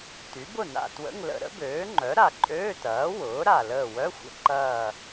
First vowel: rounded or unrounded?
rounded